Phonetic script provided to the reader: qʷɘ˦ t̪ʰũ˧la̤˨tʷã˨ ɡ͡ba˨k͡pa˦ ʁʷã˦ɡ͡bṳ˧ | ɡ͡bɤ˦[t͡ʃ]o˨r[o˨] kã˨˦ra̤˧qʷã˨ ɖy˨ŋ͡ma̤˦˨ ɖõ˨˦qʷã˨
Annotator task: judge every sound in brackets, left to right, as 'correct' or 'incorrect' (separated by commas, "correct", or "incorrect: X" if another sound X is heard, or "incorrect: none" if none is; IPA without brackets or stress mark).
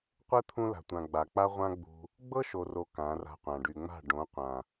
incorrect: ʃ, correct